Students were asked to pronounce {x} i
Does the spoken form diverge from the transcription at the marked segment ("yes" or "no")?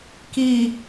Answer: yes